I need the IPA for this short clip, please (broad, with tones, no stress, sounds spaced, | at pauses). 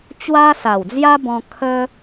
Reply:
t͡ɕ w a˦ s a˨˩ w d͡z j a˦ b ɔ̃˧ kʰ ə˦